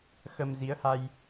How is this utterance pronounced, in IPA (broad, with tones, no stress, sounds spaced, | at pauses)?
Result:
x ə˧ m z i˨˦ ə̯ h a˧ j